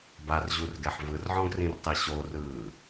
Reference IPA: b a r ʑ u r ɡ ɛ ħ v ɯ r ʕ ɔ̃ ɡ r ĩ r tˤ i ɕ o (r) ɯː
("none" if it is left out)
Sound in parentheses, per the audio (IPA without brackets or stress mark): r